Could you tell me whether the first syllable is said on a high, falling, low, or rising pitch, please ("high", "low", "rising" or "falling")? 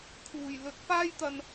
low